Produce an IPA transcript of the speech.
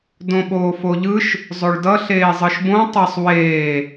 d õ ɓ oː f o ʎ ɯ ʃ | zˤ o ɭ d ʌ ɬ eː zˤ ɯ ʃ b õ tˤ ʌ sˤ w eː

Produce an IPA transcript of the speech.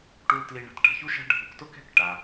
ʈ u˥ l t l i˥ ɳ a̤˧ t ʈ a̤˧ ç u˥ ʃ a̤˥ ɖʱ u˧ k t ʊ˥ k ɛ̤˥ k ʈ a˧

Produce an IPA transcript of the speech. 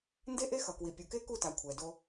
n d e˦ ʔ e˦ x ʌ˨ k w i˨ pʲ u˨ k e˦ k u˦˨ t a˨ kʷʰ ɛ˨ d o˦

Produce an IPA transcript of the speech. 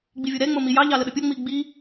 ɡ͡b i vʲ o ɾ ɛ ŋ͡m o m i j ɑ ʎ ɑ l ə ɗ ə pʲ o ŋ͡m i ɡ͡b i

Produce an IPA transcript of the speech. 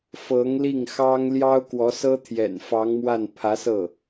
f ɤ˧˥ ŋ l i˥˩ ŋ x ɑ˥ ŋ l j ɑ˥ ʊ̯ k w ɔ˧˥ s ɤ˥ t̪ʰ j ɛ̰˨˩ n f ɑ˧˥ ŋ m w a˥˩ n pʰ ä˧˥ s ɤ˥˩

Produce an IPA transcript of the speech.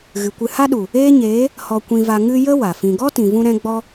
ɣ ɨ˨ kʷ ɨ˧ h a˦ ɗ u˨ | eː˦ ɲ eː˨˦ | h ɔ˧ kʷ ĩ˧ v a˧ ŋ ɨ˧ j ə˦ w a˨ f ĩ˧ ɡ ɔ˦ t ĩ˨ v ũ˧ ɾ ɛ̃˧ ɡ͡b ɔ˧

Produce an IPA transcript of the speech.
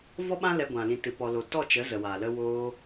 v ɔ˦ ɓ ã˦ l ɛ˧ ɡʷ ã˨ l ĩ˧ t ɨ˧ p ɔ˧ l o˨ t ɔ˦˨ t͡ʃ ə˨˦ z ə˨ w a˨ l ə˧ w oː˧

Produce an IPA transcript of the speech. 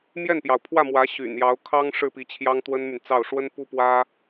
m j ɛ˥˩ n p j ɑ˩ ʊ̯ pʰ w ä˥˩ m w ä˧˥ ɕ y̰˨˩ n j ɑ˧˥ ʊ̯ kʰ ɑ˥ ŋ ʂ ɻ̩˥˩ p i˧˥ t͡ɕʰ j ɑ˥ ŋ t̪ w ə˥ n m y˨ n t͡s ɑ˥˩ ʊ̯ ʂ w ə˥ n p u˥ p w ä˥

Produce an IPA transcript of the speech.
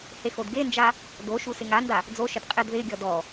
h e x o d ɡ e n d͡ʒ a | d o ʃ u s ɪ ŋ a n d a | d͡z o ʃ ɪ d qʼ ɪ d ð ɪ ɡʲ ɔ d ɔ

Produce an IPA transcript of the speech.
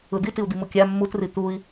ɯ d̪ i t i u̯ d̪ i m u kʲ æ mː u t r i t̪ u i̯

